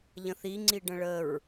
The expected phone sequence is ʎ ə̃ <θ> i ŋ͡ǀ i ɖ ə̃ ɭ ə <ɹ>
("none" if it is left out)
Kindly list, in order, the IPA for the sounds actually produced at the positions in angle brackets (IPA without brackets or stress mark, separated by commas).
θ, ɹ